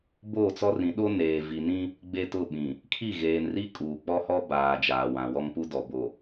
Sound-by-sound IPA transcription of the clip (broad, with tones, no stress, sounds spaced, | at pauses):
b oː˦˨ t͡s ɔ˦ r ĩ˨˦ ɗ o˦ n eː˨ v i˨ n ĩ˦ | ɡ͡b e˦ t ʊ˦˨ ɓ ĩ˨ | kʰ i˦˨ ɣ eː˨ n r i˦ kʼ uː˨ k͡p ɔ˦ h ɔ˦ b aː˨ d͡ʒ aː˨ w ã˨ w ɔ˦ ŋ p u˦ d ɔ˨ b o˨